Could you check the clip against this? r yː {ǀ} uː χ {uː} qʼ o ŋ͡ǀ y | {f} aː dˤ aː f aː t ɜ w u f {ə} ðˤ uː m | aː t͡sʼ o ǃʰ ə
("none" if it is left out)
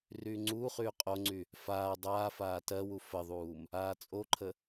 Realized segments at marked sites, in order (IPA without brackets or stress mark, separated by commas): ŋ͡ǀ, yː, f, ə